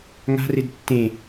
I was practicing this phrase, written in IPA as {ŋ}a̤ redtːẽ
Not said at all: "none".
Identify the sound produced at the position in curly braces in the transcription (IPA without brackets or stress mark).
ŋ